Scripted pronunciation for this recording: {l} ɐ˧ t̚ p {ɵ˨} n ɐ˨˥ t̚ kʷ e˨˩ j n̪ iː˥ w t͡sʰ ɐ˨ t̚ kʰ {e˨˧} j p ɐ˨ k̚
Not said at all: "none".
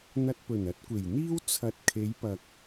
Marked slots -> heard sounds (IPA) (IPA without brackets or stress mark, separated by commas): n̪, ɵ˨˩, e˨˧